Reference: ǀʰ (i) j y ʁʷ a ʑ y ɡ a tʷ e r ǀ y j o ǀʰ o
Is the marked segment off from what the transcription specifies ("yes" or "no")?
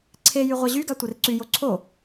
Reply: yes